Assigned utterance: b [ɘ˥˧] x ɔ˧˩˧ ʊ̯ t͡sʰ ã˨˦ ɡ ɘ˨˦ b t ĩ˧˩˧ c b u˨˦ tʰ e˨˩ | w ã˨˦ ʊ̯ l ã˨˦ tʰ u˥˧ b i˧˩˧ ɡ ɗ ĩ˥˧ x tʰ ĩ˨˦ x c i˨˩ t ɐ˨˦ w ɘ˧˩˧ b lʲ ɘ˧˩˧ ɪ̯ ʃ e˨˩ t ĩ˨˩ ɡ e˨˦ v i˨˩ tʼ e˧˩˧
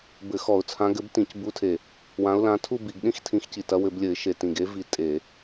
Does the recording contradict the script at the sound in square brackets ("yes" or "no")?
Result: yes